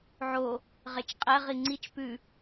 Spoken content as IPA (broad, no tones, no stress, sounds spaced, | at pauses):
ʕ o | ʁ e t͡ʃ qʼ ɛ ʁ i ŋ͡ǀ i t͡ʃ p ʉ